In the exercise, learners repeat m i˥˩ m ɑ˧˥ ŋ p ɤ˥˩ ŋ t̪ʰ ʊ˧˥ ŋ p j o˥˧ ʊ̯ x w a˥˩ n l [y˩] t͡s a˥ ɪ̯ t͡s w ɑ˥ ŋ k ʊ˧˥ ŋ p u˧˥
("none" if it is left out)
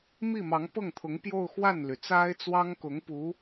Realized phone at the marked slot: y˩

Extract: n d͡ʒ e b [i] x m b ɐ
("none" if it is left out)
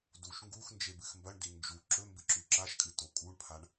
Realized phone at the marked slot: ɨ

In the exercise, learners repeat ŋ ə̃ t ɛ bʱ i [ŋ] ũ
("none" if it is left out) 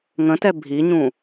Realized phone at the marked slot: ɲ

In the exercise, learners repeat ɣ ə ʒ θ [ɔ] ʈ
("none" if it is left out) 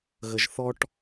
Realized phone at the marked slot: ɔ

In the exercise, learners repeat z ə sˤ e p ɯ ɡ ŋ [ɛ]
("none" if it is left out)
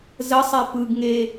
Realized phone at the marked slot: e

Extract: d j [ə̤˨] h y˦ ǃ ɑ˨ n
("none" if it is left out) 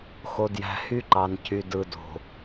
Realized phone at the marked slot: æ̤˨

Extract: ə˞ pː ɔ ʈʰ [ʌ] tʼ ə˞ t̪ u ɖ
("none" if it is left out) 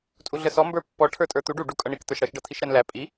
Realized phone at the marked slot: ə˞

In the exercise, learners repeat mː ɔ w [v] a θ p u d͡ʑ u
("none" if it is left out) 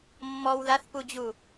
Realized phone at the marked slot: ð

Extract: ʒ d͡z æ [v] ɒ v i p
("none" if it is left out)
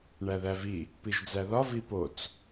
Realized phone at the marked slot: ð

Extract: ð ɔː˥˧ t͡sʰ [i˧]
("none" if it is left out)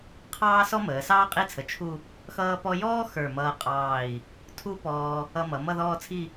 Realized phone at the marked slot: i˥˧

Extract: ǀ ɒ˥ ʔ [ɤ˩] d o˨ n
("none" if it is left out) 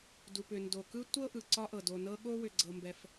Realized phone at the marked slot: ɤ˩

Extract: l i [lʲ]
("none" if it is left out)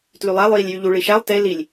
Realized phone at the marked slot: lʲ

